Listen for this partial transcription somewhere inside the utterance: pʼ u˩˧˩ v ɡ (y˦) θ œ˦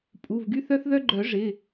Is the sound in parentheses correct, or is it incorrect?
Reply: correct